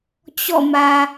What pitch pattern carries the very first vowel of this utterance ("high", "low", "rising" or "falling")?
falling